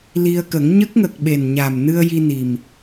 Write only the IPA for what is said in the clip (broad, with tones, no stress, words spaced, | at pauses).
li˧ə̯kə˨˩˦ŋ ɲə˦˥k̚ŋə˨˩k̚ ɓe˨˩nɲa˨˩mnɨ˧ə̯ ji˧ni˨˩m